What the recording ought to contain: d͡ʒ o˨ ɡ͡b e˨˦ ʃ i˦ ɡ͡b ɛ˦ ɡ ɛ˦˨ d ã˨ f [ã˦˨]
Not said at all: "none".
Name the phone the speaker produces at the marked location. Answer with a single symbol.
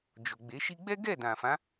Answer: ã˨˦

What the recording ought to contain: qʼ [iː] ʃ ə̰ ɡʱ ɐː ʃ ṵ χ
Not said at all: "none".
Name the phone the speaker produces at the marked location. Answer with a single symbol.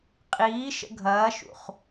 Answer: iː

